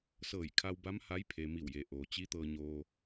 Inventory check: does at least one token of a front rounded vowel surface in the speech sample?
no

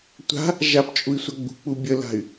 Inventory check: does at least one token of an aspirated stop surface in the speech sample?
no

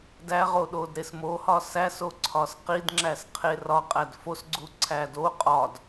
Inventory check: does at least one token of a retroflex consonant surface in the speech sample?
no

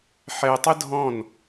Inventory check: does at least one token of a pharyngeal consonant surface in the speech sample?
yes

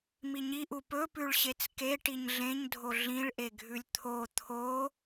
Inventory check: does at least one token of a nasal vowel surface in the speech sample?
yes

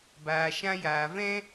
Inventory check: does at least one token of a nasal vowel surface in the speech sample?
yes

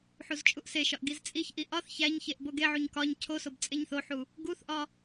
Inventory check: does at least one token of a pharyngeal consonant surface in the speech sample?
yes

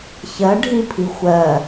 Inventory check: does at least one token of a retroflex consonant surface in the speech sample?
yes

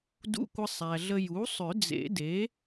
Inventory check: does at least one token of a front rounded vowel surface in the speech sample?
yes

